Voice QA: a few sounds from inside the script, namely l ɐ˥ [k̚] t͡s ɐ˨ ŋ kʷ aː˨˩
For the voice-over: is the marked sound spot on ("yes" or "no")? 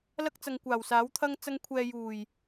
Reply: yes